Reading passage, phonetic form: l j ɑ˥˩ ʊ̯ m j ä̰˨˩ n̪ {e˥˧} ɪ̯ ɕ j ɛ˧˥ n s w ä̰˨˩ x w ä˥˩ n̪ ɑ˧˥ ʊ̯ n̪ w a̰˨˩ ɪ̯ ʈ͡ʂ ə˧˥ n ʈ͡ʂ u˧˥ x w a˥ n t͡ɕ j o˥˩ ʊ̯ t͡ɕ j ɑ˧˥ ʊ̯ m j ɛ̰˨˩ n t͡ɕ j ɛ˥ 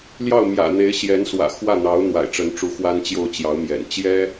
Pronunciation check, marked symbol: incorrect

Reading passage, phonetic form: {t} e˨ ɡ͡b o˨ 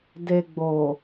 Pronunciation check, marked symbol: incorrect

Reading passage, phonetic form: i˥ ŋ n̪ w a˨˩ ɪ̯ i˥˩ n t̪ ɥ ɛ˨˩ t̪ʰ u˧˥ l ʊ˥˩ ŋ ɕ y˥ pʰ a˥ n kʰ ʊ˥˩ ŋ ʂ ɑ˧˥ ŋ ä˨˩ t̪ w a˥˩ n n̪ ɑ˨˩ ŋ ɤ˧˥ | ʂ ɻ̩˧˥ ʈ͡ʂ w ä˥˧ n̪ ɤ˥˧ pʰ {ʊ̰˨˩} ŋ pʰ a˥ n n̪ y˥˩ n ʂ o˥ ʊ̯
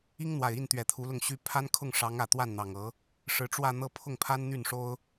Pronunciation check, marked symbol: incorrect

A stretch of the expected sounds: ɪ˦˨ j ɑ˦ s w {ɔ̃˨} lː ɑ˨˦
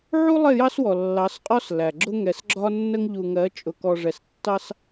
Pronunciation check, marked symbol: incorrect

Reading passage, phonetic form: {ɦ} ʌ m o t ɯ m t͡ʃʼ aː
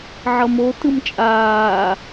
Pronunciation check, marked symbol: incorrect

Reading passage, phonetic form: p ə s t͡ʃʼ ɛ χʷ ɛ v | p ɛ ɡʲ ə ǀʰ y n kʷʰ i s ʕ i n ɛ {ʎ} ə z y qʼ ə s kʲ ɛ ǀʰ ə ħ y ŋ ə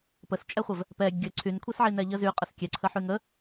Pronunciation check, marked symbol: correct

